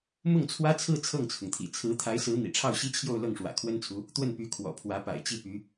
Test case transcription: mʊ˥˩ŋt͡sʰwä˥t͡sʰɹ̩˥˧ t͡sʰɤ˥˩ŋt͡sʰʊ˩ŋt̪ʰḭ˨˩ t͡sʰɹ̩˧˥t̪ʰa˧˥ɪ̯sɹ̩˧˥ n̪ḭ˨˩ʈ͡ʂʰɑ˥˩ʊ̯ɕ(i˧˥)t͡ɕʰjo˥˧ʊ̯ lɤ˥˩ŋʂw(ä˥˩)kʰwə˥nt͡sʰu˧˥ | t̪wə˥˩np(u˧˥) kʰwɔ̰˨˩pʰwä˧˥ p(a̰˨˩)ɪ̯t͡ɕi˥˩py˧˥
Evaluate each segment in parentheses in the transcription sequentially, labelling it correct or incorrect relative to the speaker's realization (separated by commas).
incorrect, incorrect, incorrect, correct